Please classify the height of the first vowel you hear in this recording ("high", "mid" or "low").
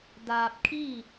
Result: low